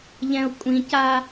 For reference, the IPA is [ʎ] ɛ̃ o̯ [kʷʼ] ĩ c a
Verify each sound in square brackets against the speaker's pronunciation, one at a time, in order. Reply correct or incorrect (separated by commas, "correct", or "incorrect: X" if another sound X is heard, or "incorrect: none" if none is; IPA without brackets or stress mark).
correct, correct